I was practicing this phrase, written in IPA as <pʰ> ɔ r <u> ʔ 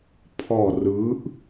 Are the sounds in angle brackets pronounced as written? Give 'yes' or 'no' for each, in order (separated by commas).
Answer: yes, no